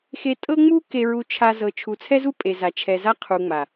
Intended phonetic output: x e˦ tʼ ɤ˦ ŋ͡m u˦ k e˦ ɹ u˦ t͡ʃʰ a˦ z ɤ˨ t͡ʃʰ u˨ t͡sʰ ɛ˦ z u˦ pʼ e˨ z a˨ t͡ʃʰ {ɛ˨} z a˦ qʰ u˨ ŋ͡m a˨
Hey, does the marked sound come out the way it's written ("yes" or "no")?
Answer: yes